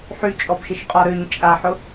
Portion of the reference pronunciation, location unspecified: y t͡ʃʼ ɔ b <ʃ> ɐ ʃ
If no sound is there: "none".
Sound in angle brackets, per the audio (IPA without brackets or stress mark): ʃ